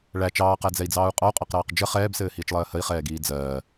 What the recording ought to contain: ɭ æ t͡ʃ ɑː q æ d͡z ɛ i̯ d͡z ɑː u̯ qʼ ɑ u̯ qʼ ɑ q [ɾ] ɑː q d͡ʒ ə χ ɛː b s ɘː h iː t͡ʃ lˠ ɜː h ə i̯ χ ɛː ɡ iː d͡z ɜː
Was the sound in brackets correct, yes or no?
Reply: yes